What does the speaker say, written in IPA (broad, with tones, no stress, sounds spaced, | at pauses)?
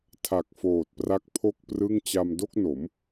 tʰ a˨˩ k̚ f oː˨˩ t̚ p r a˦˥ k̚ pʰ o˥˩ k̚ p r ɯ˥˩ ŋ t͡ɕ a˧ m d o˥˩ k̚ n o˩˦ m